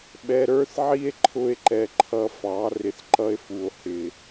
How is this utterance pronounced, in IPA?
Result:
ɓɛ˧ɾə˞˦θʕi˦e̯ ǃʰʊ˦e̯ǃɛ˧ǃʰʌ˧fɑ˨˦ rɪ˧θǃʌ˦e̯fu˨o̯hɪ˨

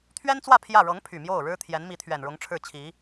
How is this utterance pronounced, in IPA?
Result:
t̪ʰɥɛ˥nt͡swä˥˧ pʰjä˥˩ ɻɤ˧˥ŋpʰy˨˩ mjo˥˩ʊ̯ɻɻ̩˥ t̪ʰjɛ˧˥nmi˧˥t̪ʰɥɛ˨˩nɻʊ˧˥ŋ ʈ͡ʂʰɻ̩˥˩t͡ɕʰi˧˥

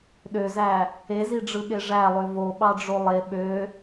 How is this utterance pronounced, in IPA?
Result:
ɗøzæ | eziɖ͡ʐɯɠe ʐælˠø voɓɑɖ͡ʐo lˠe ɓø

